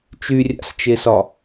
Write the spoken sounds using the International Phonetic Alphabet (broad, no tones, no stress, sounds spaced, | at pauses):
t͡ʃ y rʲ a̰ s t͡ʃ e s ɒ